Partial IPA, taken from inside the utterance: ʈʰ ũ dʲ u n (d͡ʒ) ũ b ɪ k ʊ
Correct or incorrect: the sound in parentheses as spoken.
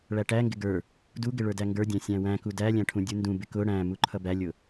incorrect: d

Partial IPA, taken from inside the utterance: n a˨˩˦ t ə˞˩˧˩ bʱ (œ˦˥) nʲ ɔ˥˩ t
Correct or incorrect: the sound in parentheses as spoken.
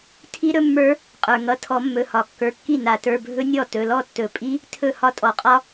incorrect: ɵ˦˥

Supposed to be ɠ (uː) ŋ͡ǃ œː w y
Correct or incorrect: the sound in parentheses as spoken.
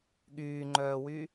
incorrect: yː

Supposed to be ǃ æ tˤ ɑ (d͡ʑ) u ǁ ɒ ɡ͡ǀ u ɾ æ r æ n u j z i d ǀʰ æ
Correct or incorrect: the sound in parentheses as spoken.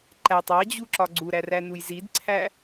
correct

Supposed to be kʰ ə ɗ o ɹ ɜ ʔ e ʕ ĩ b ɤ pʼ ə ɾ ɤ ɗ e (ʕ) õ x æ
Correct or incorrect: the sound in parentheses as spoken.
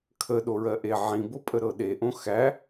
incorrect: ʔ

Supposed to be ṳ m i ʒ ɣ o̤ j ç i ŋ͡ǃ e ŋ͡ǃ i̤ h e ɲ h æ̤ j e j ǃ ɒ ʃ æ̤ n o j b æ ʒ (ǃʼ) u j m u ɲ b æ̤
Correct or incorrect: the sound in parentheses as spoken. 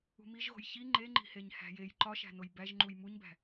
incorrect: ŋ͡ǃ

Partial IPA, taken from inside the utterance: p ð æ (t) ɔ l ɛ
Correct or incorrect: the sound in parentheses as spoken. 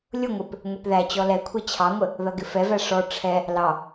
incorrect: t͡ɕ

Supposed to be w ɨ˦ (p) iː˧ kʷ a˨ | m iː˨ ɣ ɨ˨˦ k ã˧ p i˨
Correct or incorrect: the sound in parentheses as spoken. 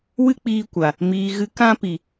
incorrect: k͡p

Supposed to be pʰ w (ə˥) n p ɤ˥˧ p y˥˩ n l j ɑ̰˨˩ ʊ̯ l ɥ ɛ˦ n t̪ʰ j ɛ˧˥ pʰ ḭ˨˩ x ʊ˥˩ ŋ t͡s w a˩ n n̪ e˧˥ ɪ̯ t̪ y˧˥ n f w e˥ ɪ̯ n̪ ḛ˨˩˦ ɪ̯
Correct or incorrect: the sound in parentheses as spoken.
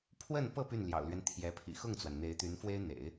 incorrect: ə˥˧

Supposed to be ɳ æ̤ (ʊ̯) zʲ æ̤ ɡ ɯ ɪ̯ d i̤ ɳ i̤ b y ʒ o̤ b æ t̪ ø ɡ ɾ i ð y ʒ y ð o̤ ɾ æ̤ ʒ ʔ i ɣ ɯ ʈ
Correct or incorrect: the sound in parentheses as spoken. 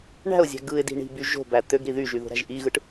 correct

